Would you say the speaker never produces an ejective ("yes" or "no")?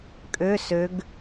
no